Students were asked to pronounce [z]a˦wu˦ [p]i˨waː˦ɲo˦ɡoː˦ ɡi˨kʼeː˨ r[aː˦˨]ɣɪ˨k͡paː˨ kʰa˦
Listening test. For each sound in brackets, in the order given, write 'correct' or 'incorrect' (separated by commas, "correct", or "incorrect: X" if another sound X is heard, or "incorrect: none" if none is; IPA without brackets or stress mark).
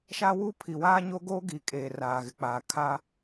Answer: incorrect: ʃ, incorrect: pʰ, incorrect: aː˨